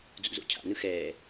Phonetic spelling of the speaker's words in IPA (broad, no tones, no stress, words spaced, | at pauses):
d͡zṵzo̰cʰa̰nɯ xɛː